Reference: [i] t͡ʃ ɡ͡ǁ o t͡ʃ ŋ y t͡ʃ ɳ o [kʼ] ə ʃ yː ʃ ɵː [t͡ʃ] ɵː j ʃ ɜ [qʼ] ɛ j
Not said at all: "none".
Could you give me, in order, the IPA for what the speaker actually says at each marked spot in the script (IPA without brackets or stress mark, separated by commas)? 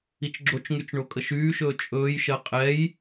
i, kʼ, t͡ʃʼ, qʼ